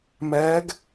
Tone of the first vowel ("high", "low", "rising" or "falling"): rising